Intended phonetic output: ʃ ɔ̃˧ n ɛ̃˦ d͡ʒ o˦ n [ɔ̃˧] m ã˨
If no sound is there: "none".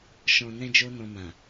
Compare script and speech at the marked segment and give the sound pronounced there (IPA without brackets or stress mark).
ɔ̃˧